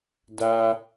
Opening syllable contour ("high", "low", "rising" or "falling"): high